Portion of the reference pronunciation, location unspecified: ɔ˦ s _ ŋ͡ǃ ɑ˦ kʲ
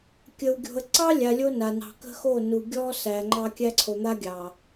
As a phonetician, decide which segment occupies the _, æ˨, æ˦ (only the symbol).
æ˨